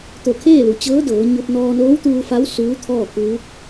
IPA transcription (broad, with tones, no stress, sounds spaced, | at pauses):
t̪ o˧˩ kʰ eː˥˨ l u˩ t͡ɕ ɤː˧˥ d ɤː˩˧ ɲ o˧ p̚ n ɔː˧ n oː˧˥ w t̪ uː˧ f a˧˥ w s uː˧˥ t̪ʰ ɔː˥˨ k uː˧˥ k̚